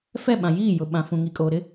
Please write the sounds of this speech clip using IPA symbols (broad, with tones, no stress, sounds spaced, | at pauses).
f ɛ˦˨ ɓ ã˨ j iː˦˨ j ʊ˨ ɓ ã˨ f ũ˨ ŋ i˨ kʼ oː˨ ɾ ɪ˦